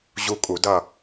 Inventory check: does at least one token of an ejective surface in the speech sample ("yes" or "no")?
yes